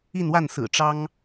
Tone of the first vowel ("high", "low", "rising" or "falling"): falling